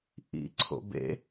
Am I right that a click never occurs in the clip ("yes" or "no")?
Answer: no